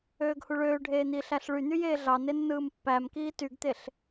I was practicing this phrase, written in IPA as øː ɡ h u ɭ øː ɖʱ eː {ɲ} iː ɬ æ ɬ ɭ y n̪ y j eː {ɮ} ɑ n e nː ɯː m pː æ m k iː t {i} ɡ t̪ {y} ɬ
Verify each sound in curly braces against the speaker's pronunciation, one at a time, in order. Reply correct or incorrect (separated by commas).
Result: incorrect, correct, incorrect, incorrect